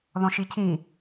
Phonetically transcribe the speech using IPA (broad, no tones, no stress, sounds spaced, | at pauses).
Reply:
ð ɔ̃ ʃ i cʰ ĩ